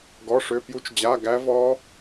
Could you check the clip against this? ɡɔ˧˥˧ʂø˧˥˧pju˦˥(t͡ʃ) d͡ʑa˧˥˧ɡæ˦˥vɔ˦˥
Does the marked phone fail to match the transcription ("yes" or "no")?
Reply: no